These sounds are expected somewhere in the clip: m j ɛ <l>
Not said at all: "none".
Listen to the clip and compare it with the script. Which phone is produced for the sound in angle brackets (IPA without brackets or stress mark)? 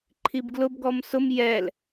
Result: l